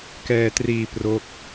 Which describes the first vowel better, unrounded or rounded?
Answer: unrounded